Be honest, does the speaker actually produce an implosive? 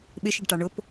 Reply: yes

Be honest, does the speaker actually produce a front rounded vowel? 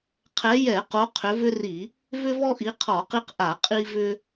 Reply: yes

